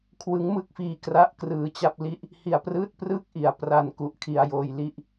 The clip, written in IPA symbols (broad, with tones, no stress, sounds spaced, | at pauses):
kʰ w ɯ˦˥ ŋ m ɯ˥˩ k̚ f iː˧ k r a˥˩ ʔ k r ɯː˧ t͡ɕ a˥˩ p̚ l i˦˥ ʔ | h i˧ a̯ p r ɯː˥˩ t̚ p r ɯ˥˩ k̚ ʔ i˨˩ a̯ p r a˧ n k u˦˥ ʔ kʰ i˧ a̯ j oː˧ j l i˥˩ ʔ